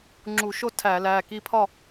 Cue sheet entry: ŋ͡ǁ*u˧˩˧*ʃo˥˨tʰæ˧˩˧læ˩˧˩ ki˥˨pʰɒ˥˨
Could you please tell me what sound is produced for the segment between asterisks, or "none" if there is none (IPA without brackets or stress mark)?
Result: u˧˩˧